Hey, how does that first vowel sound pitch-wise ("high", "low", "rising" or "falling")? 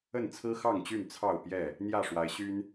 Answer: falling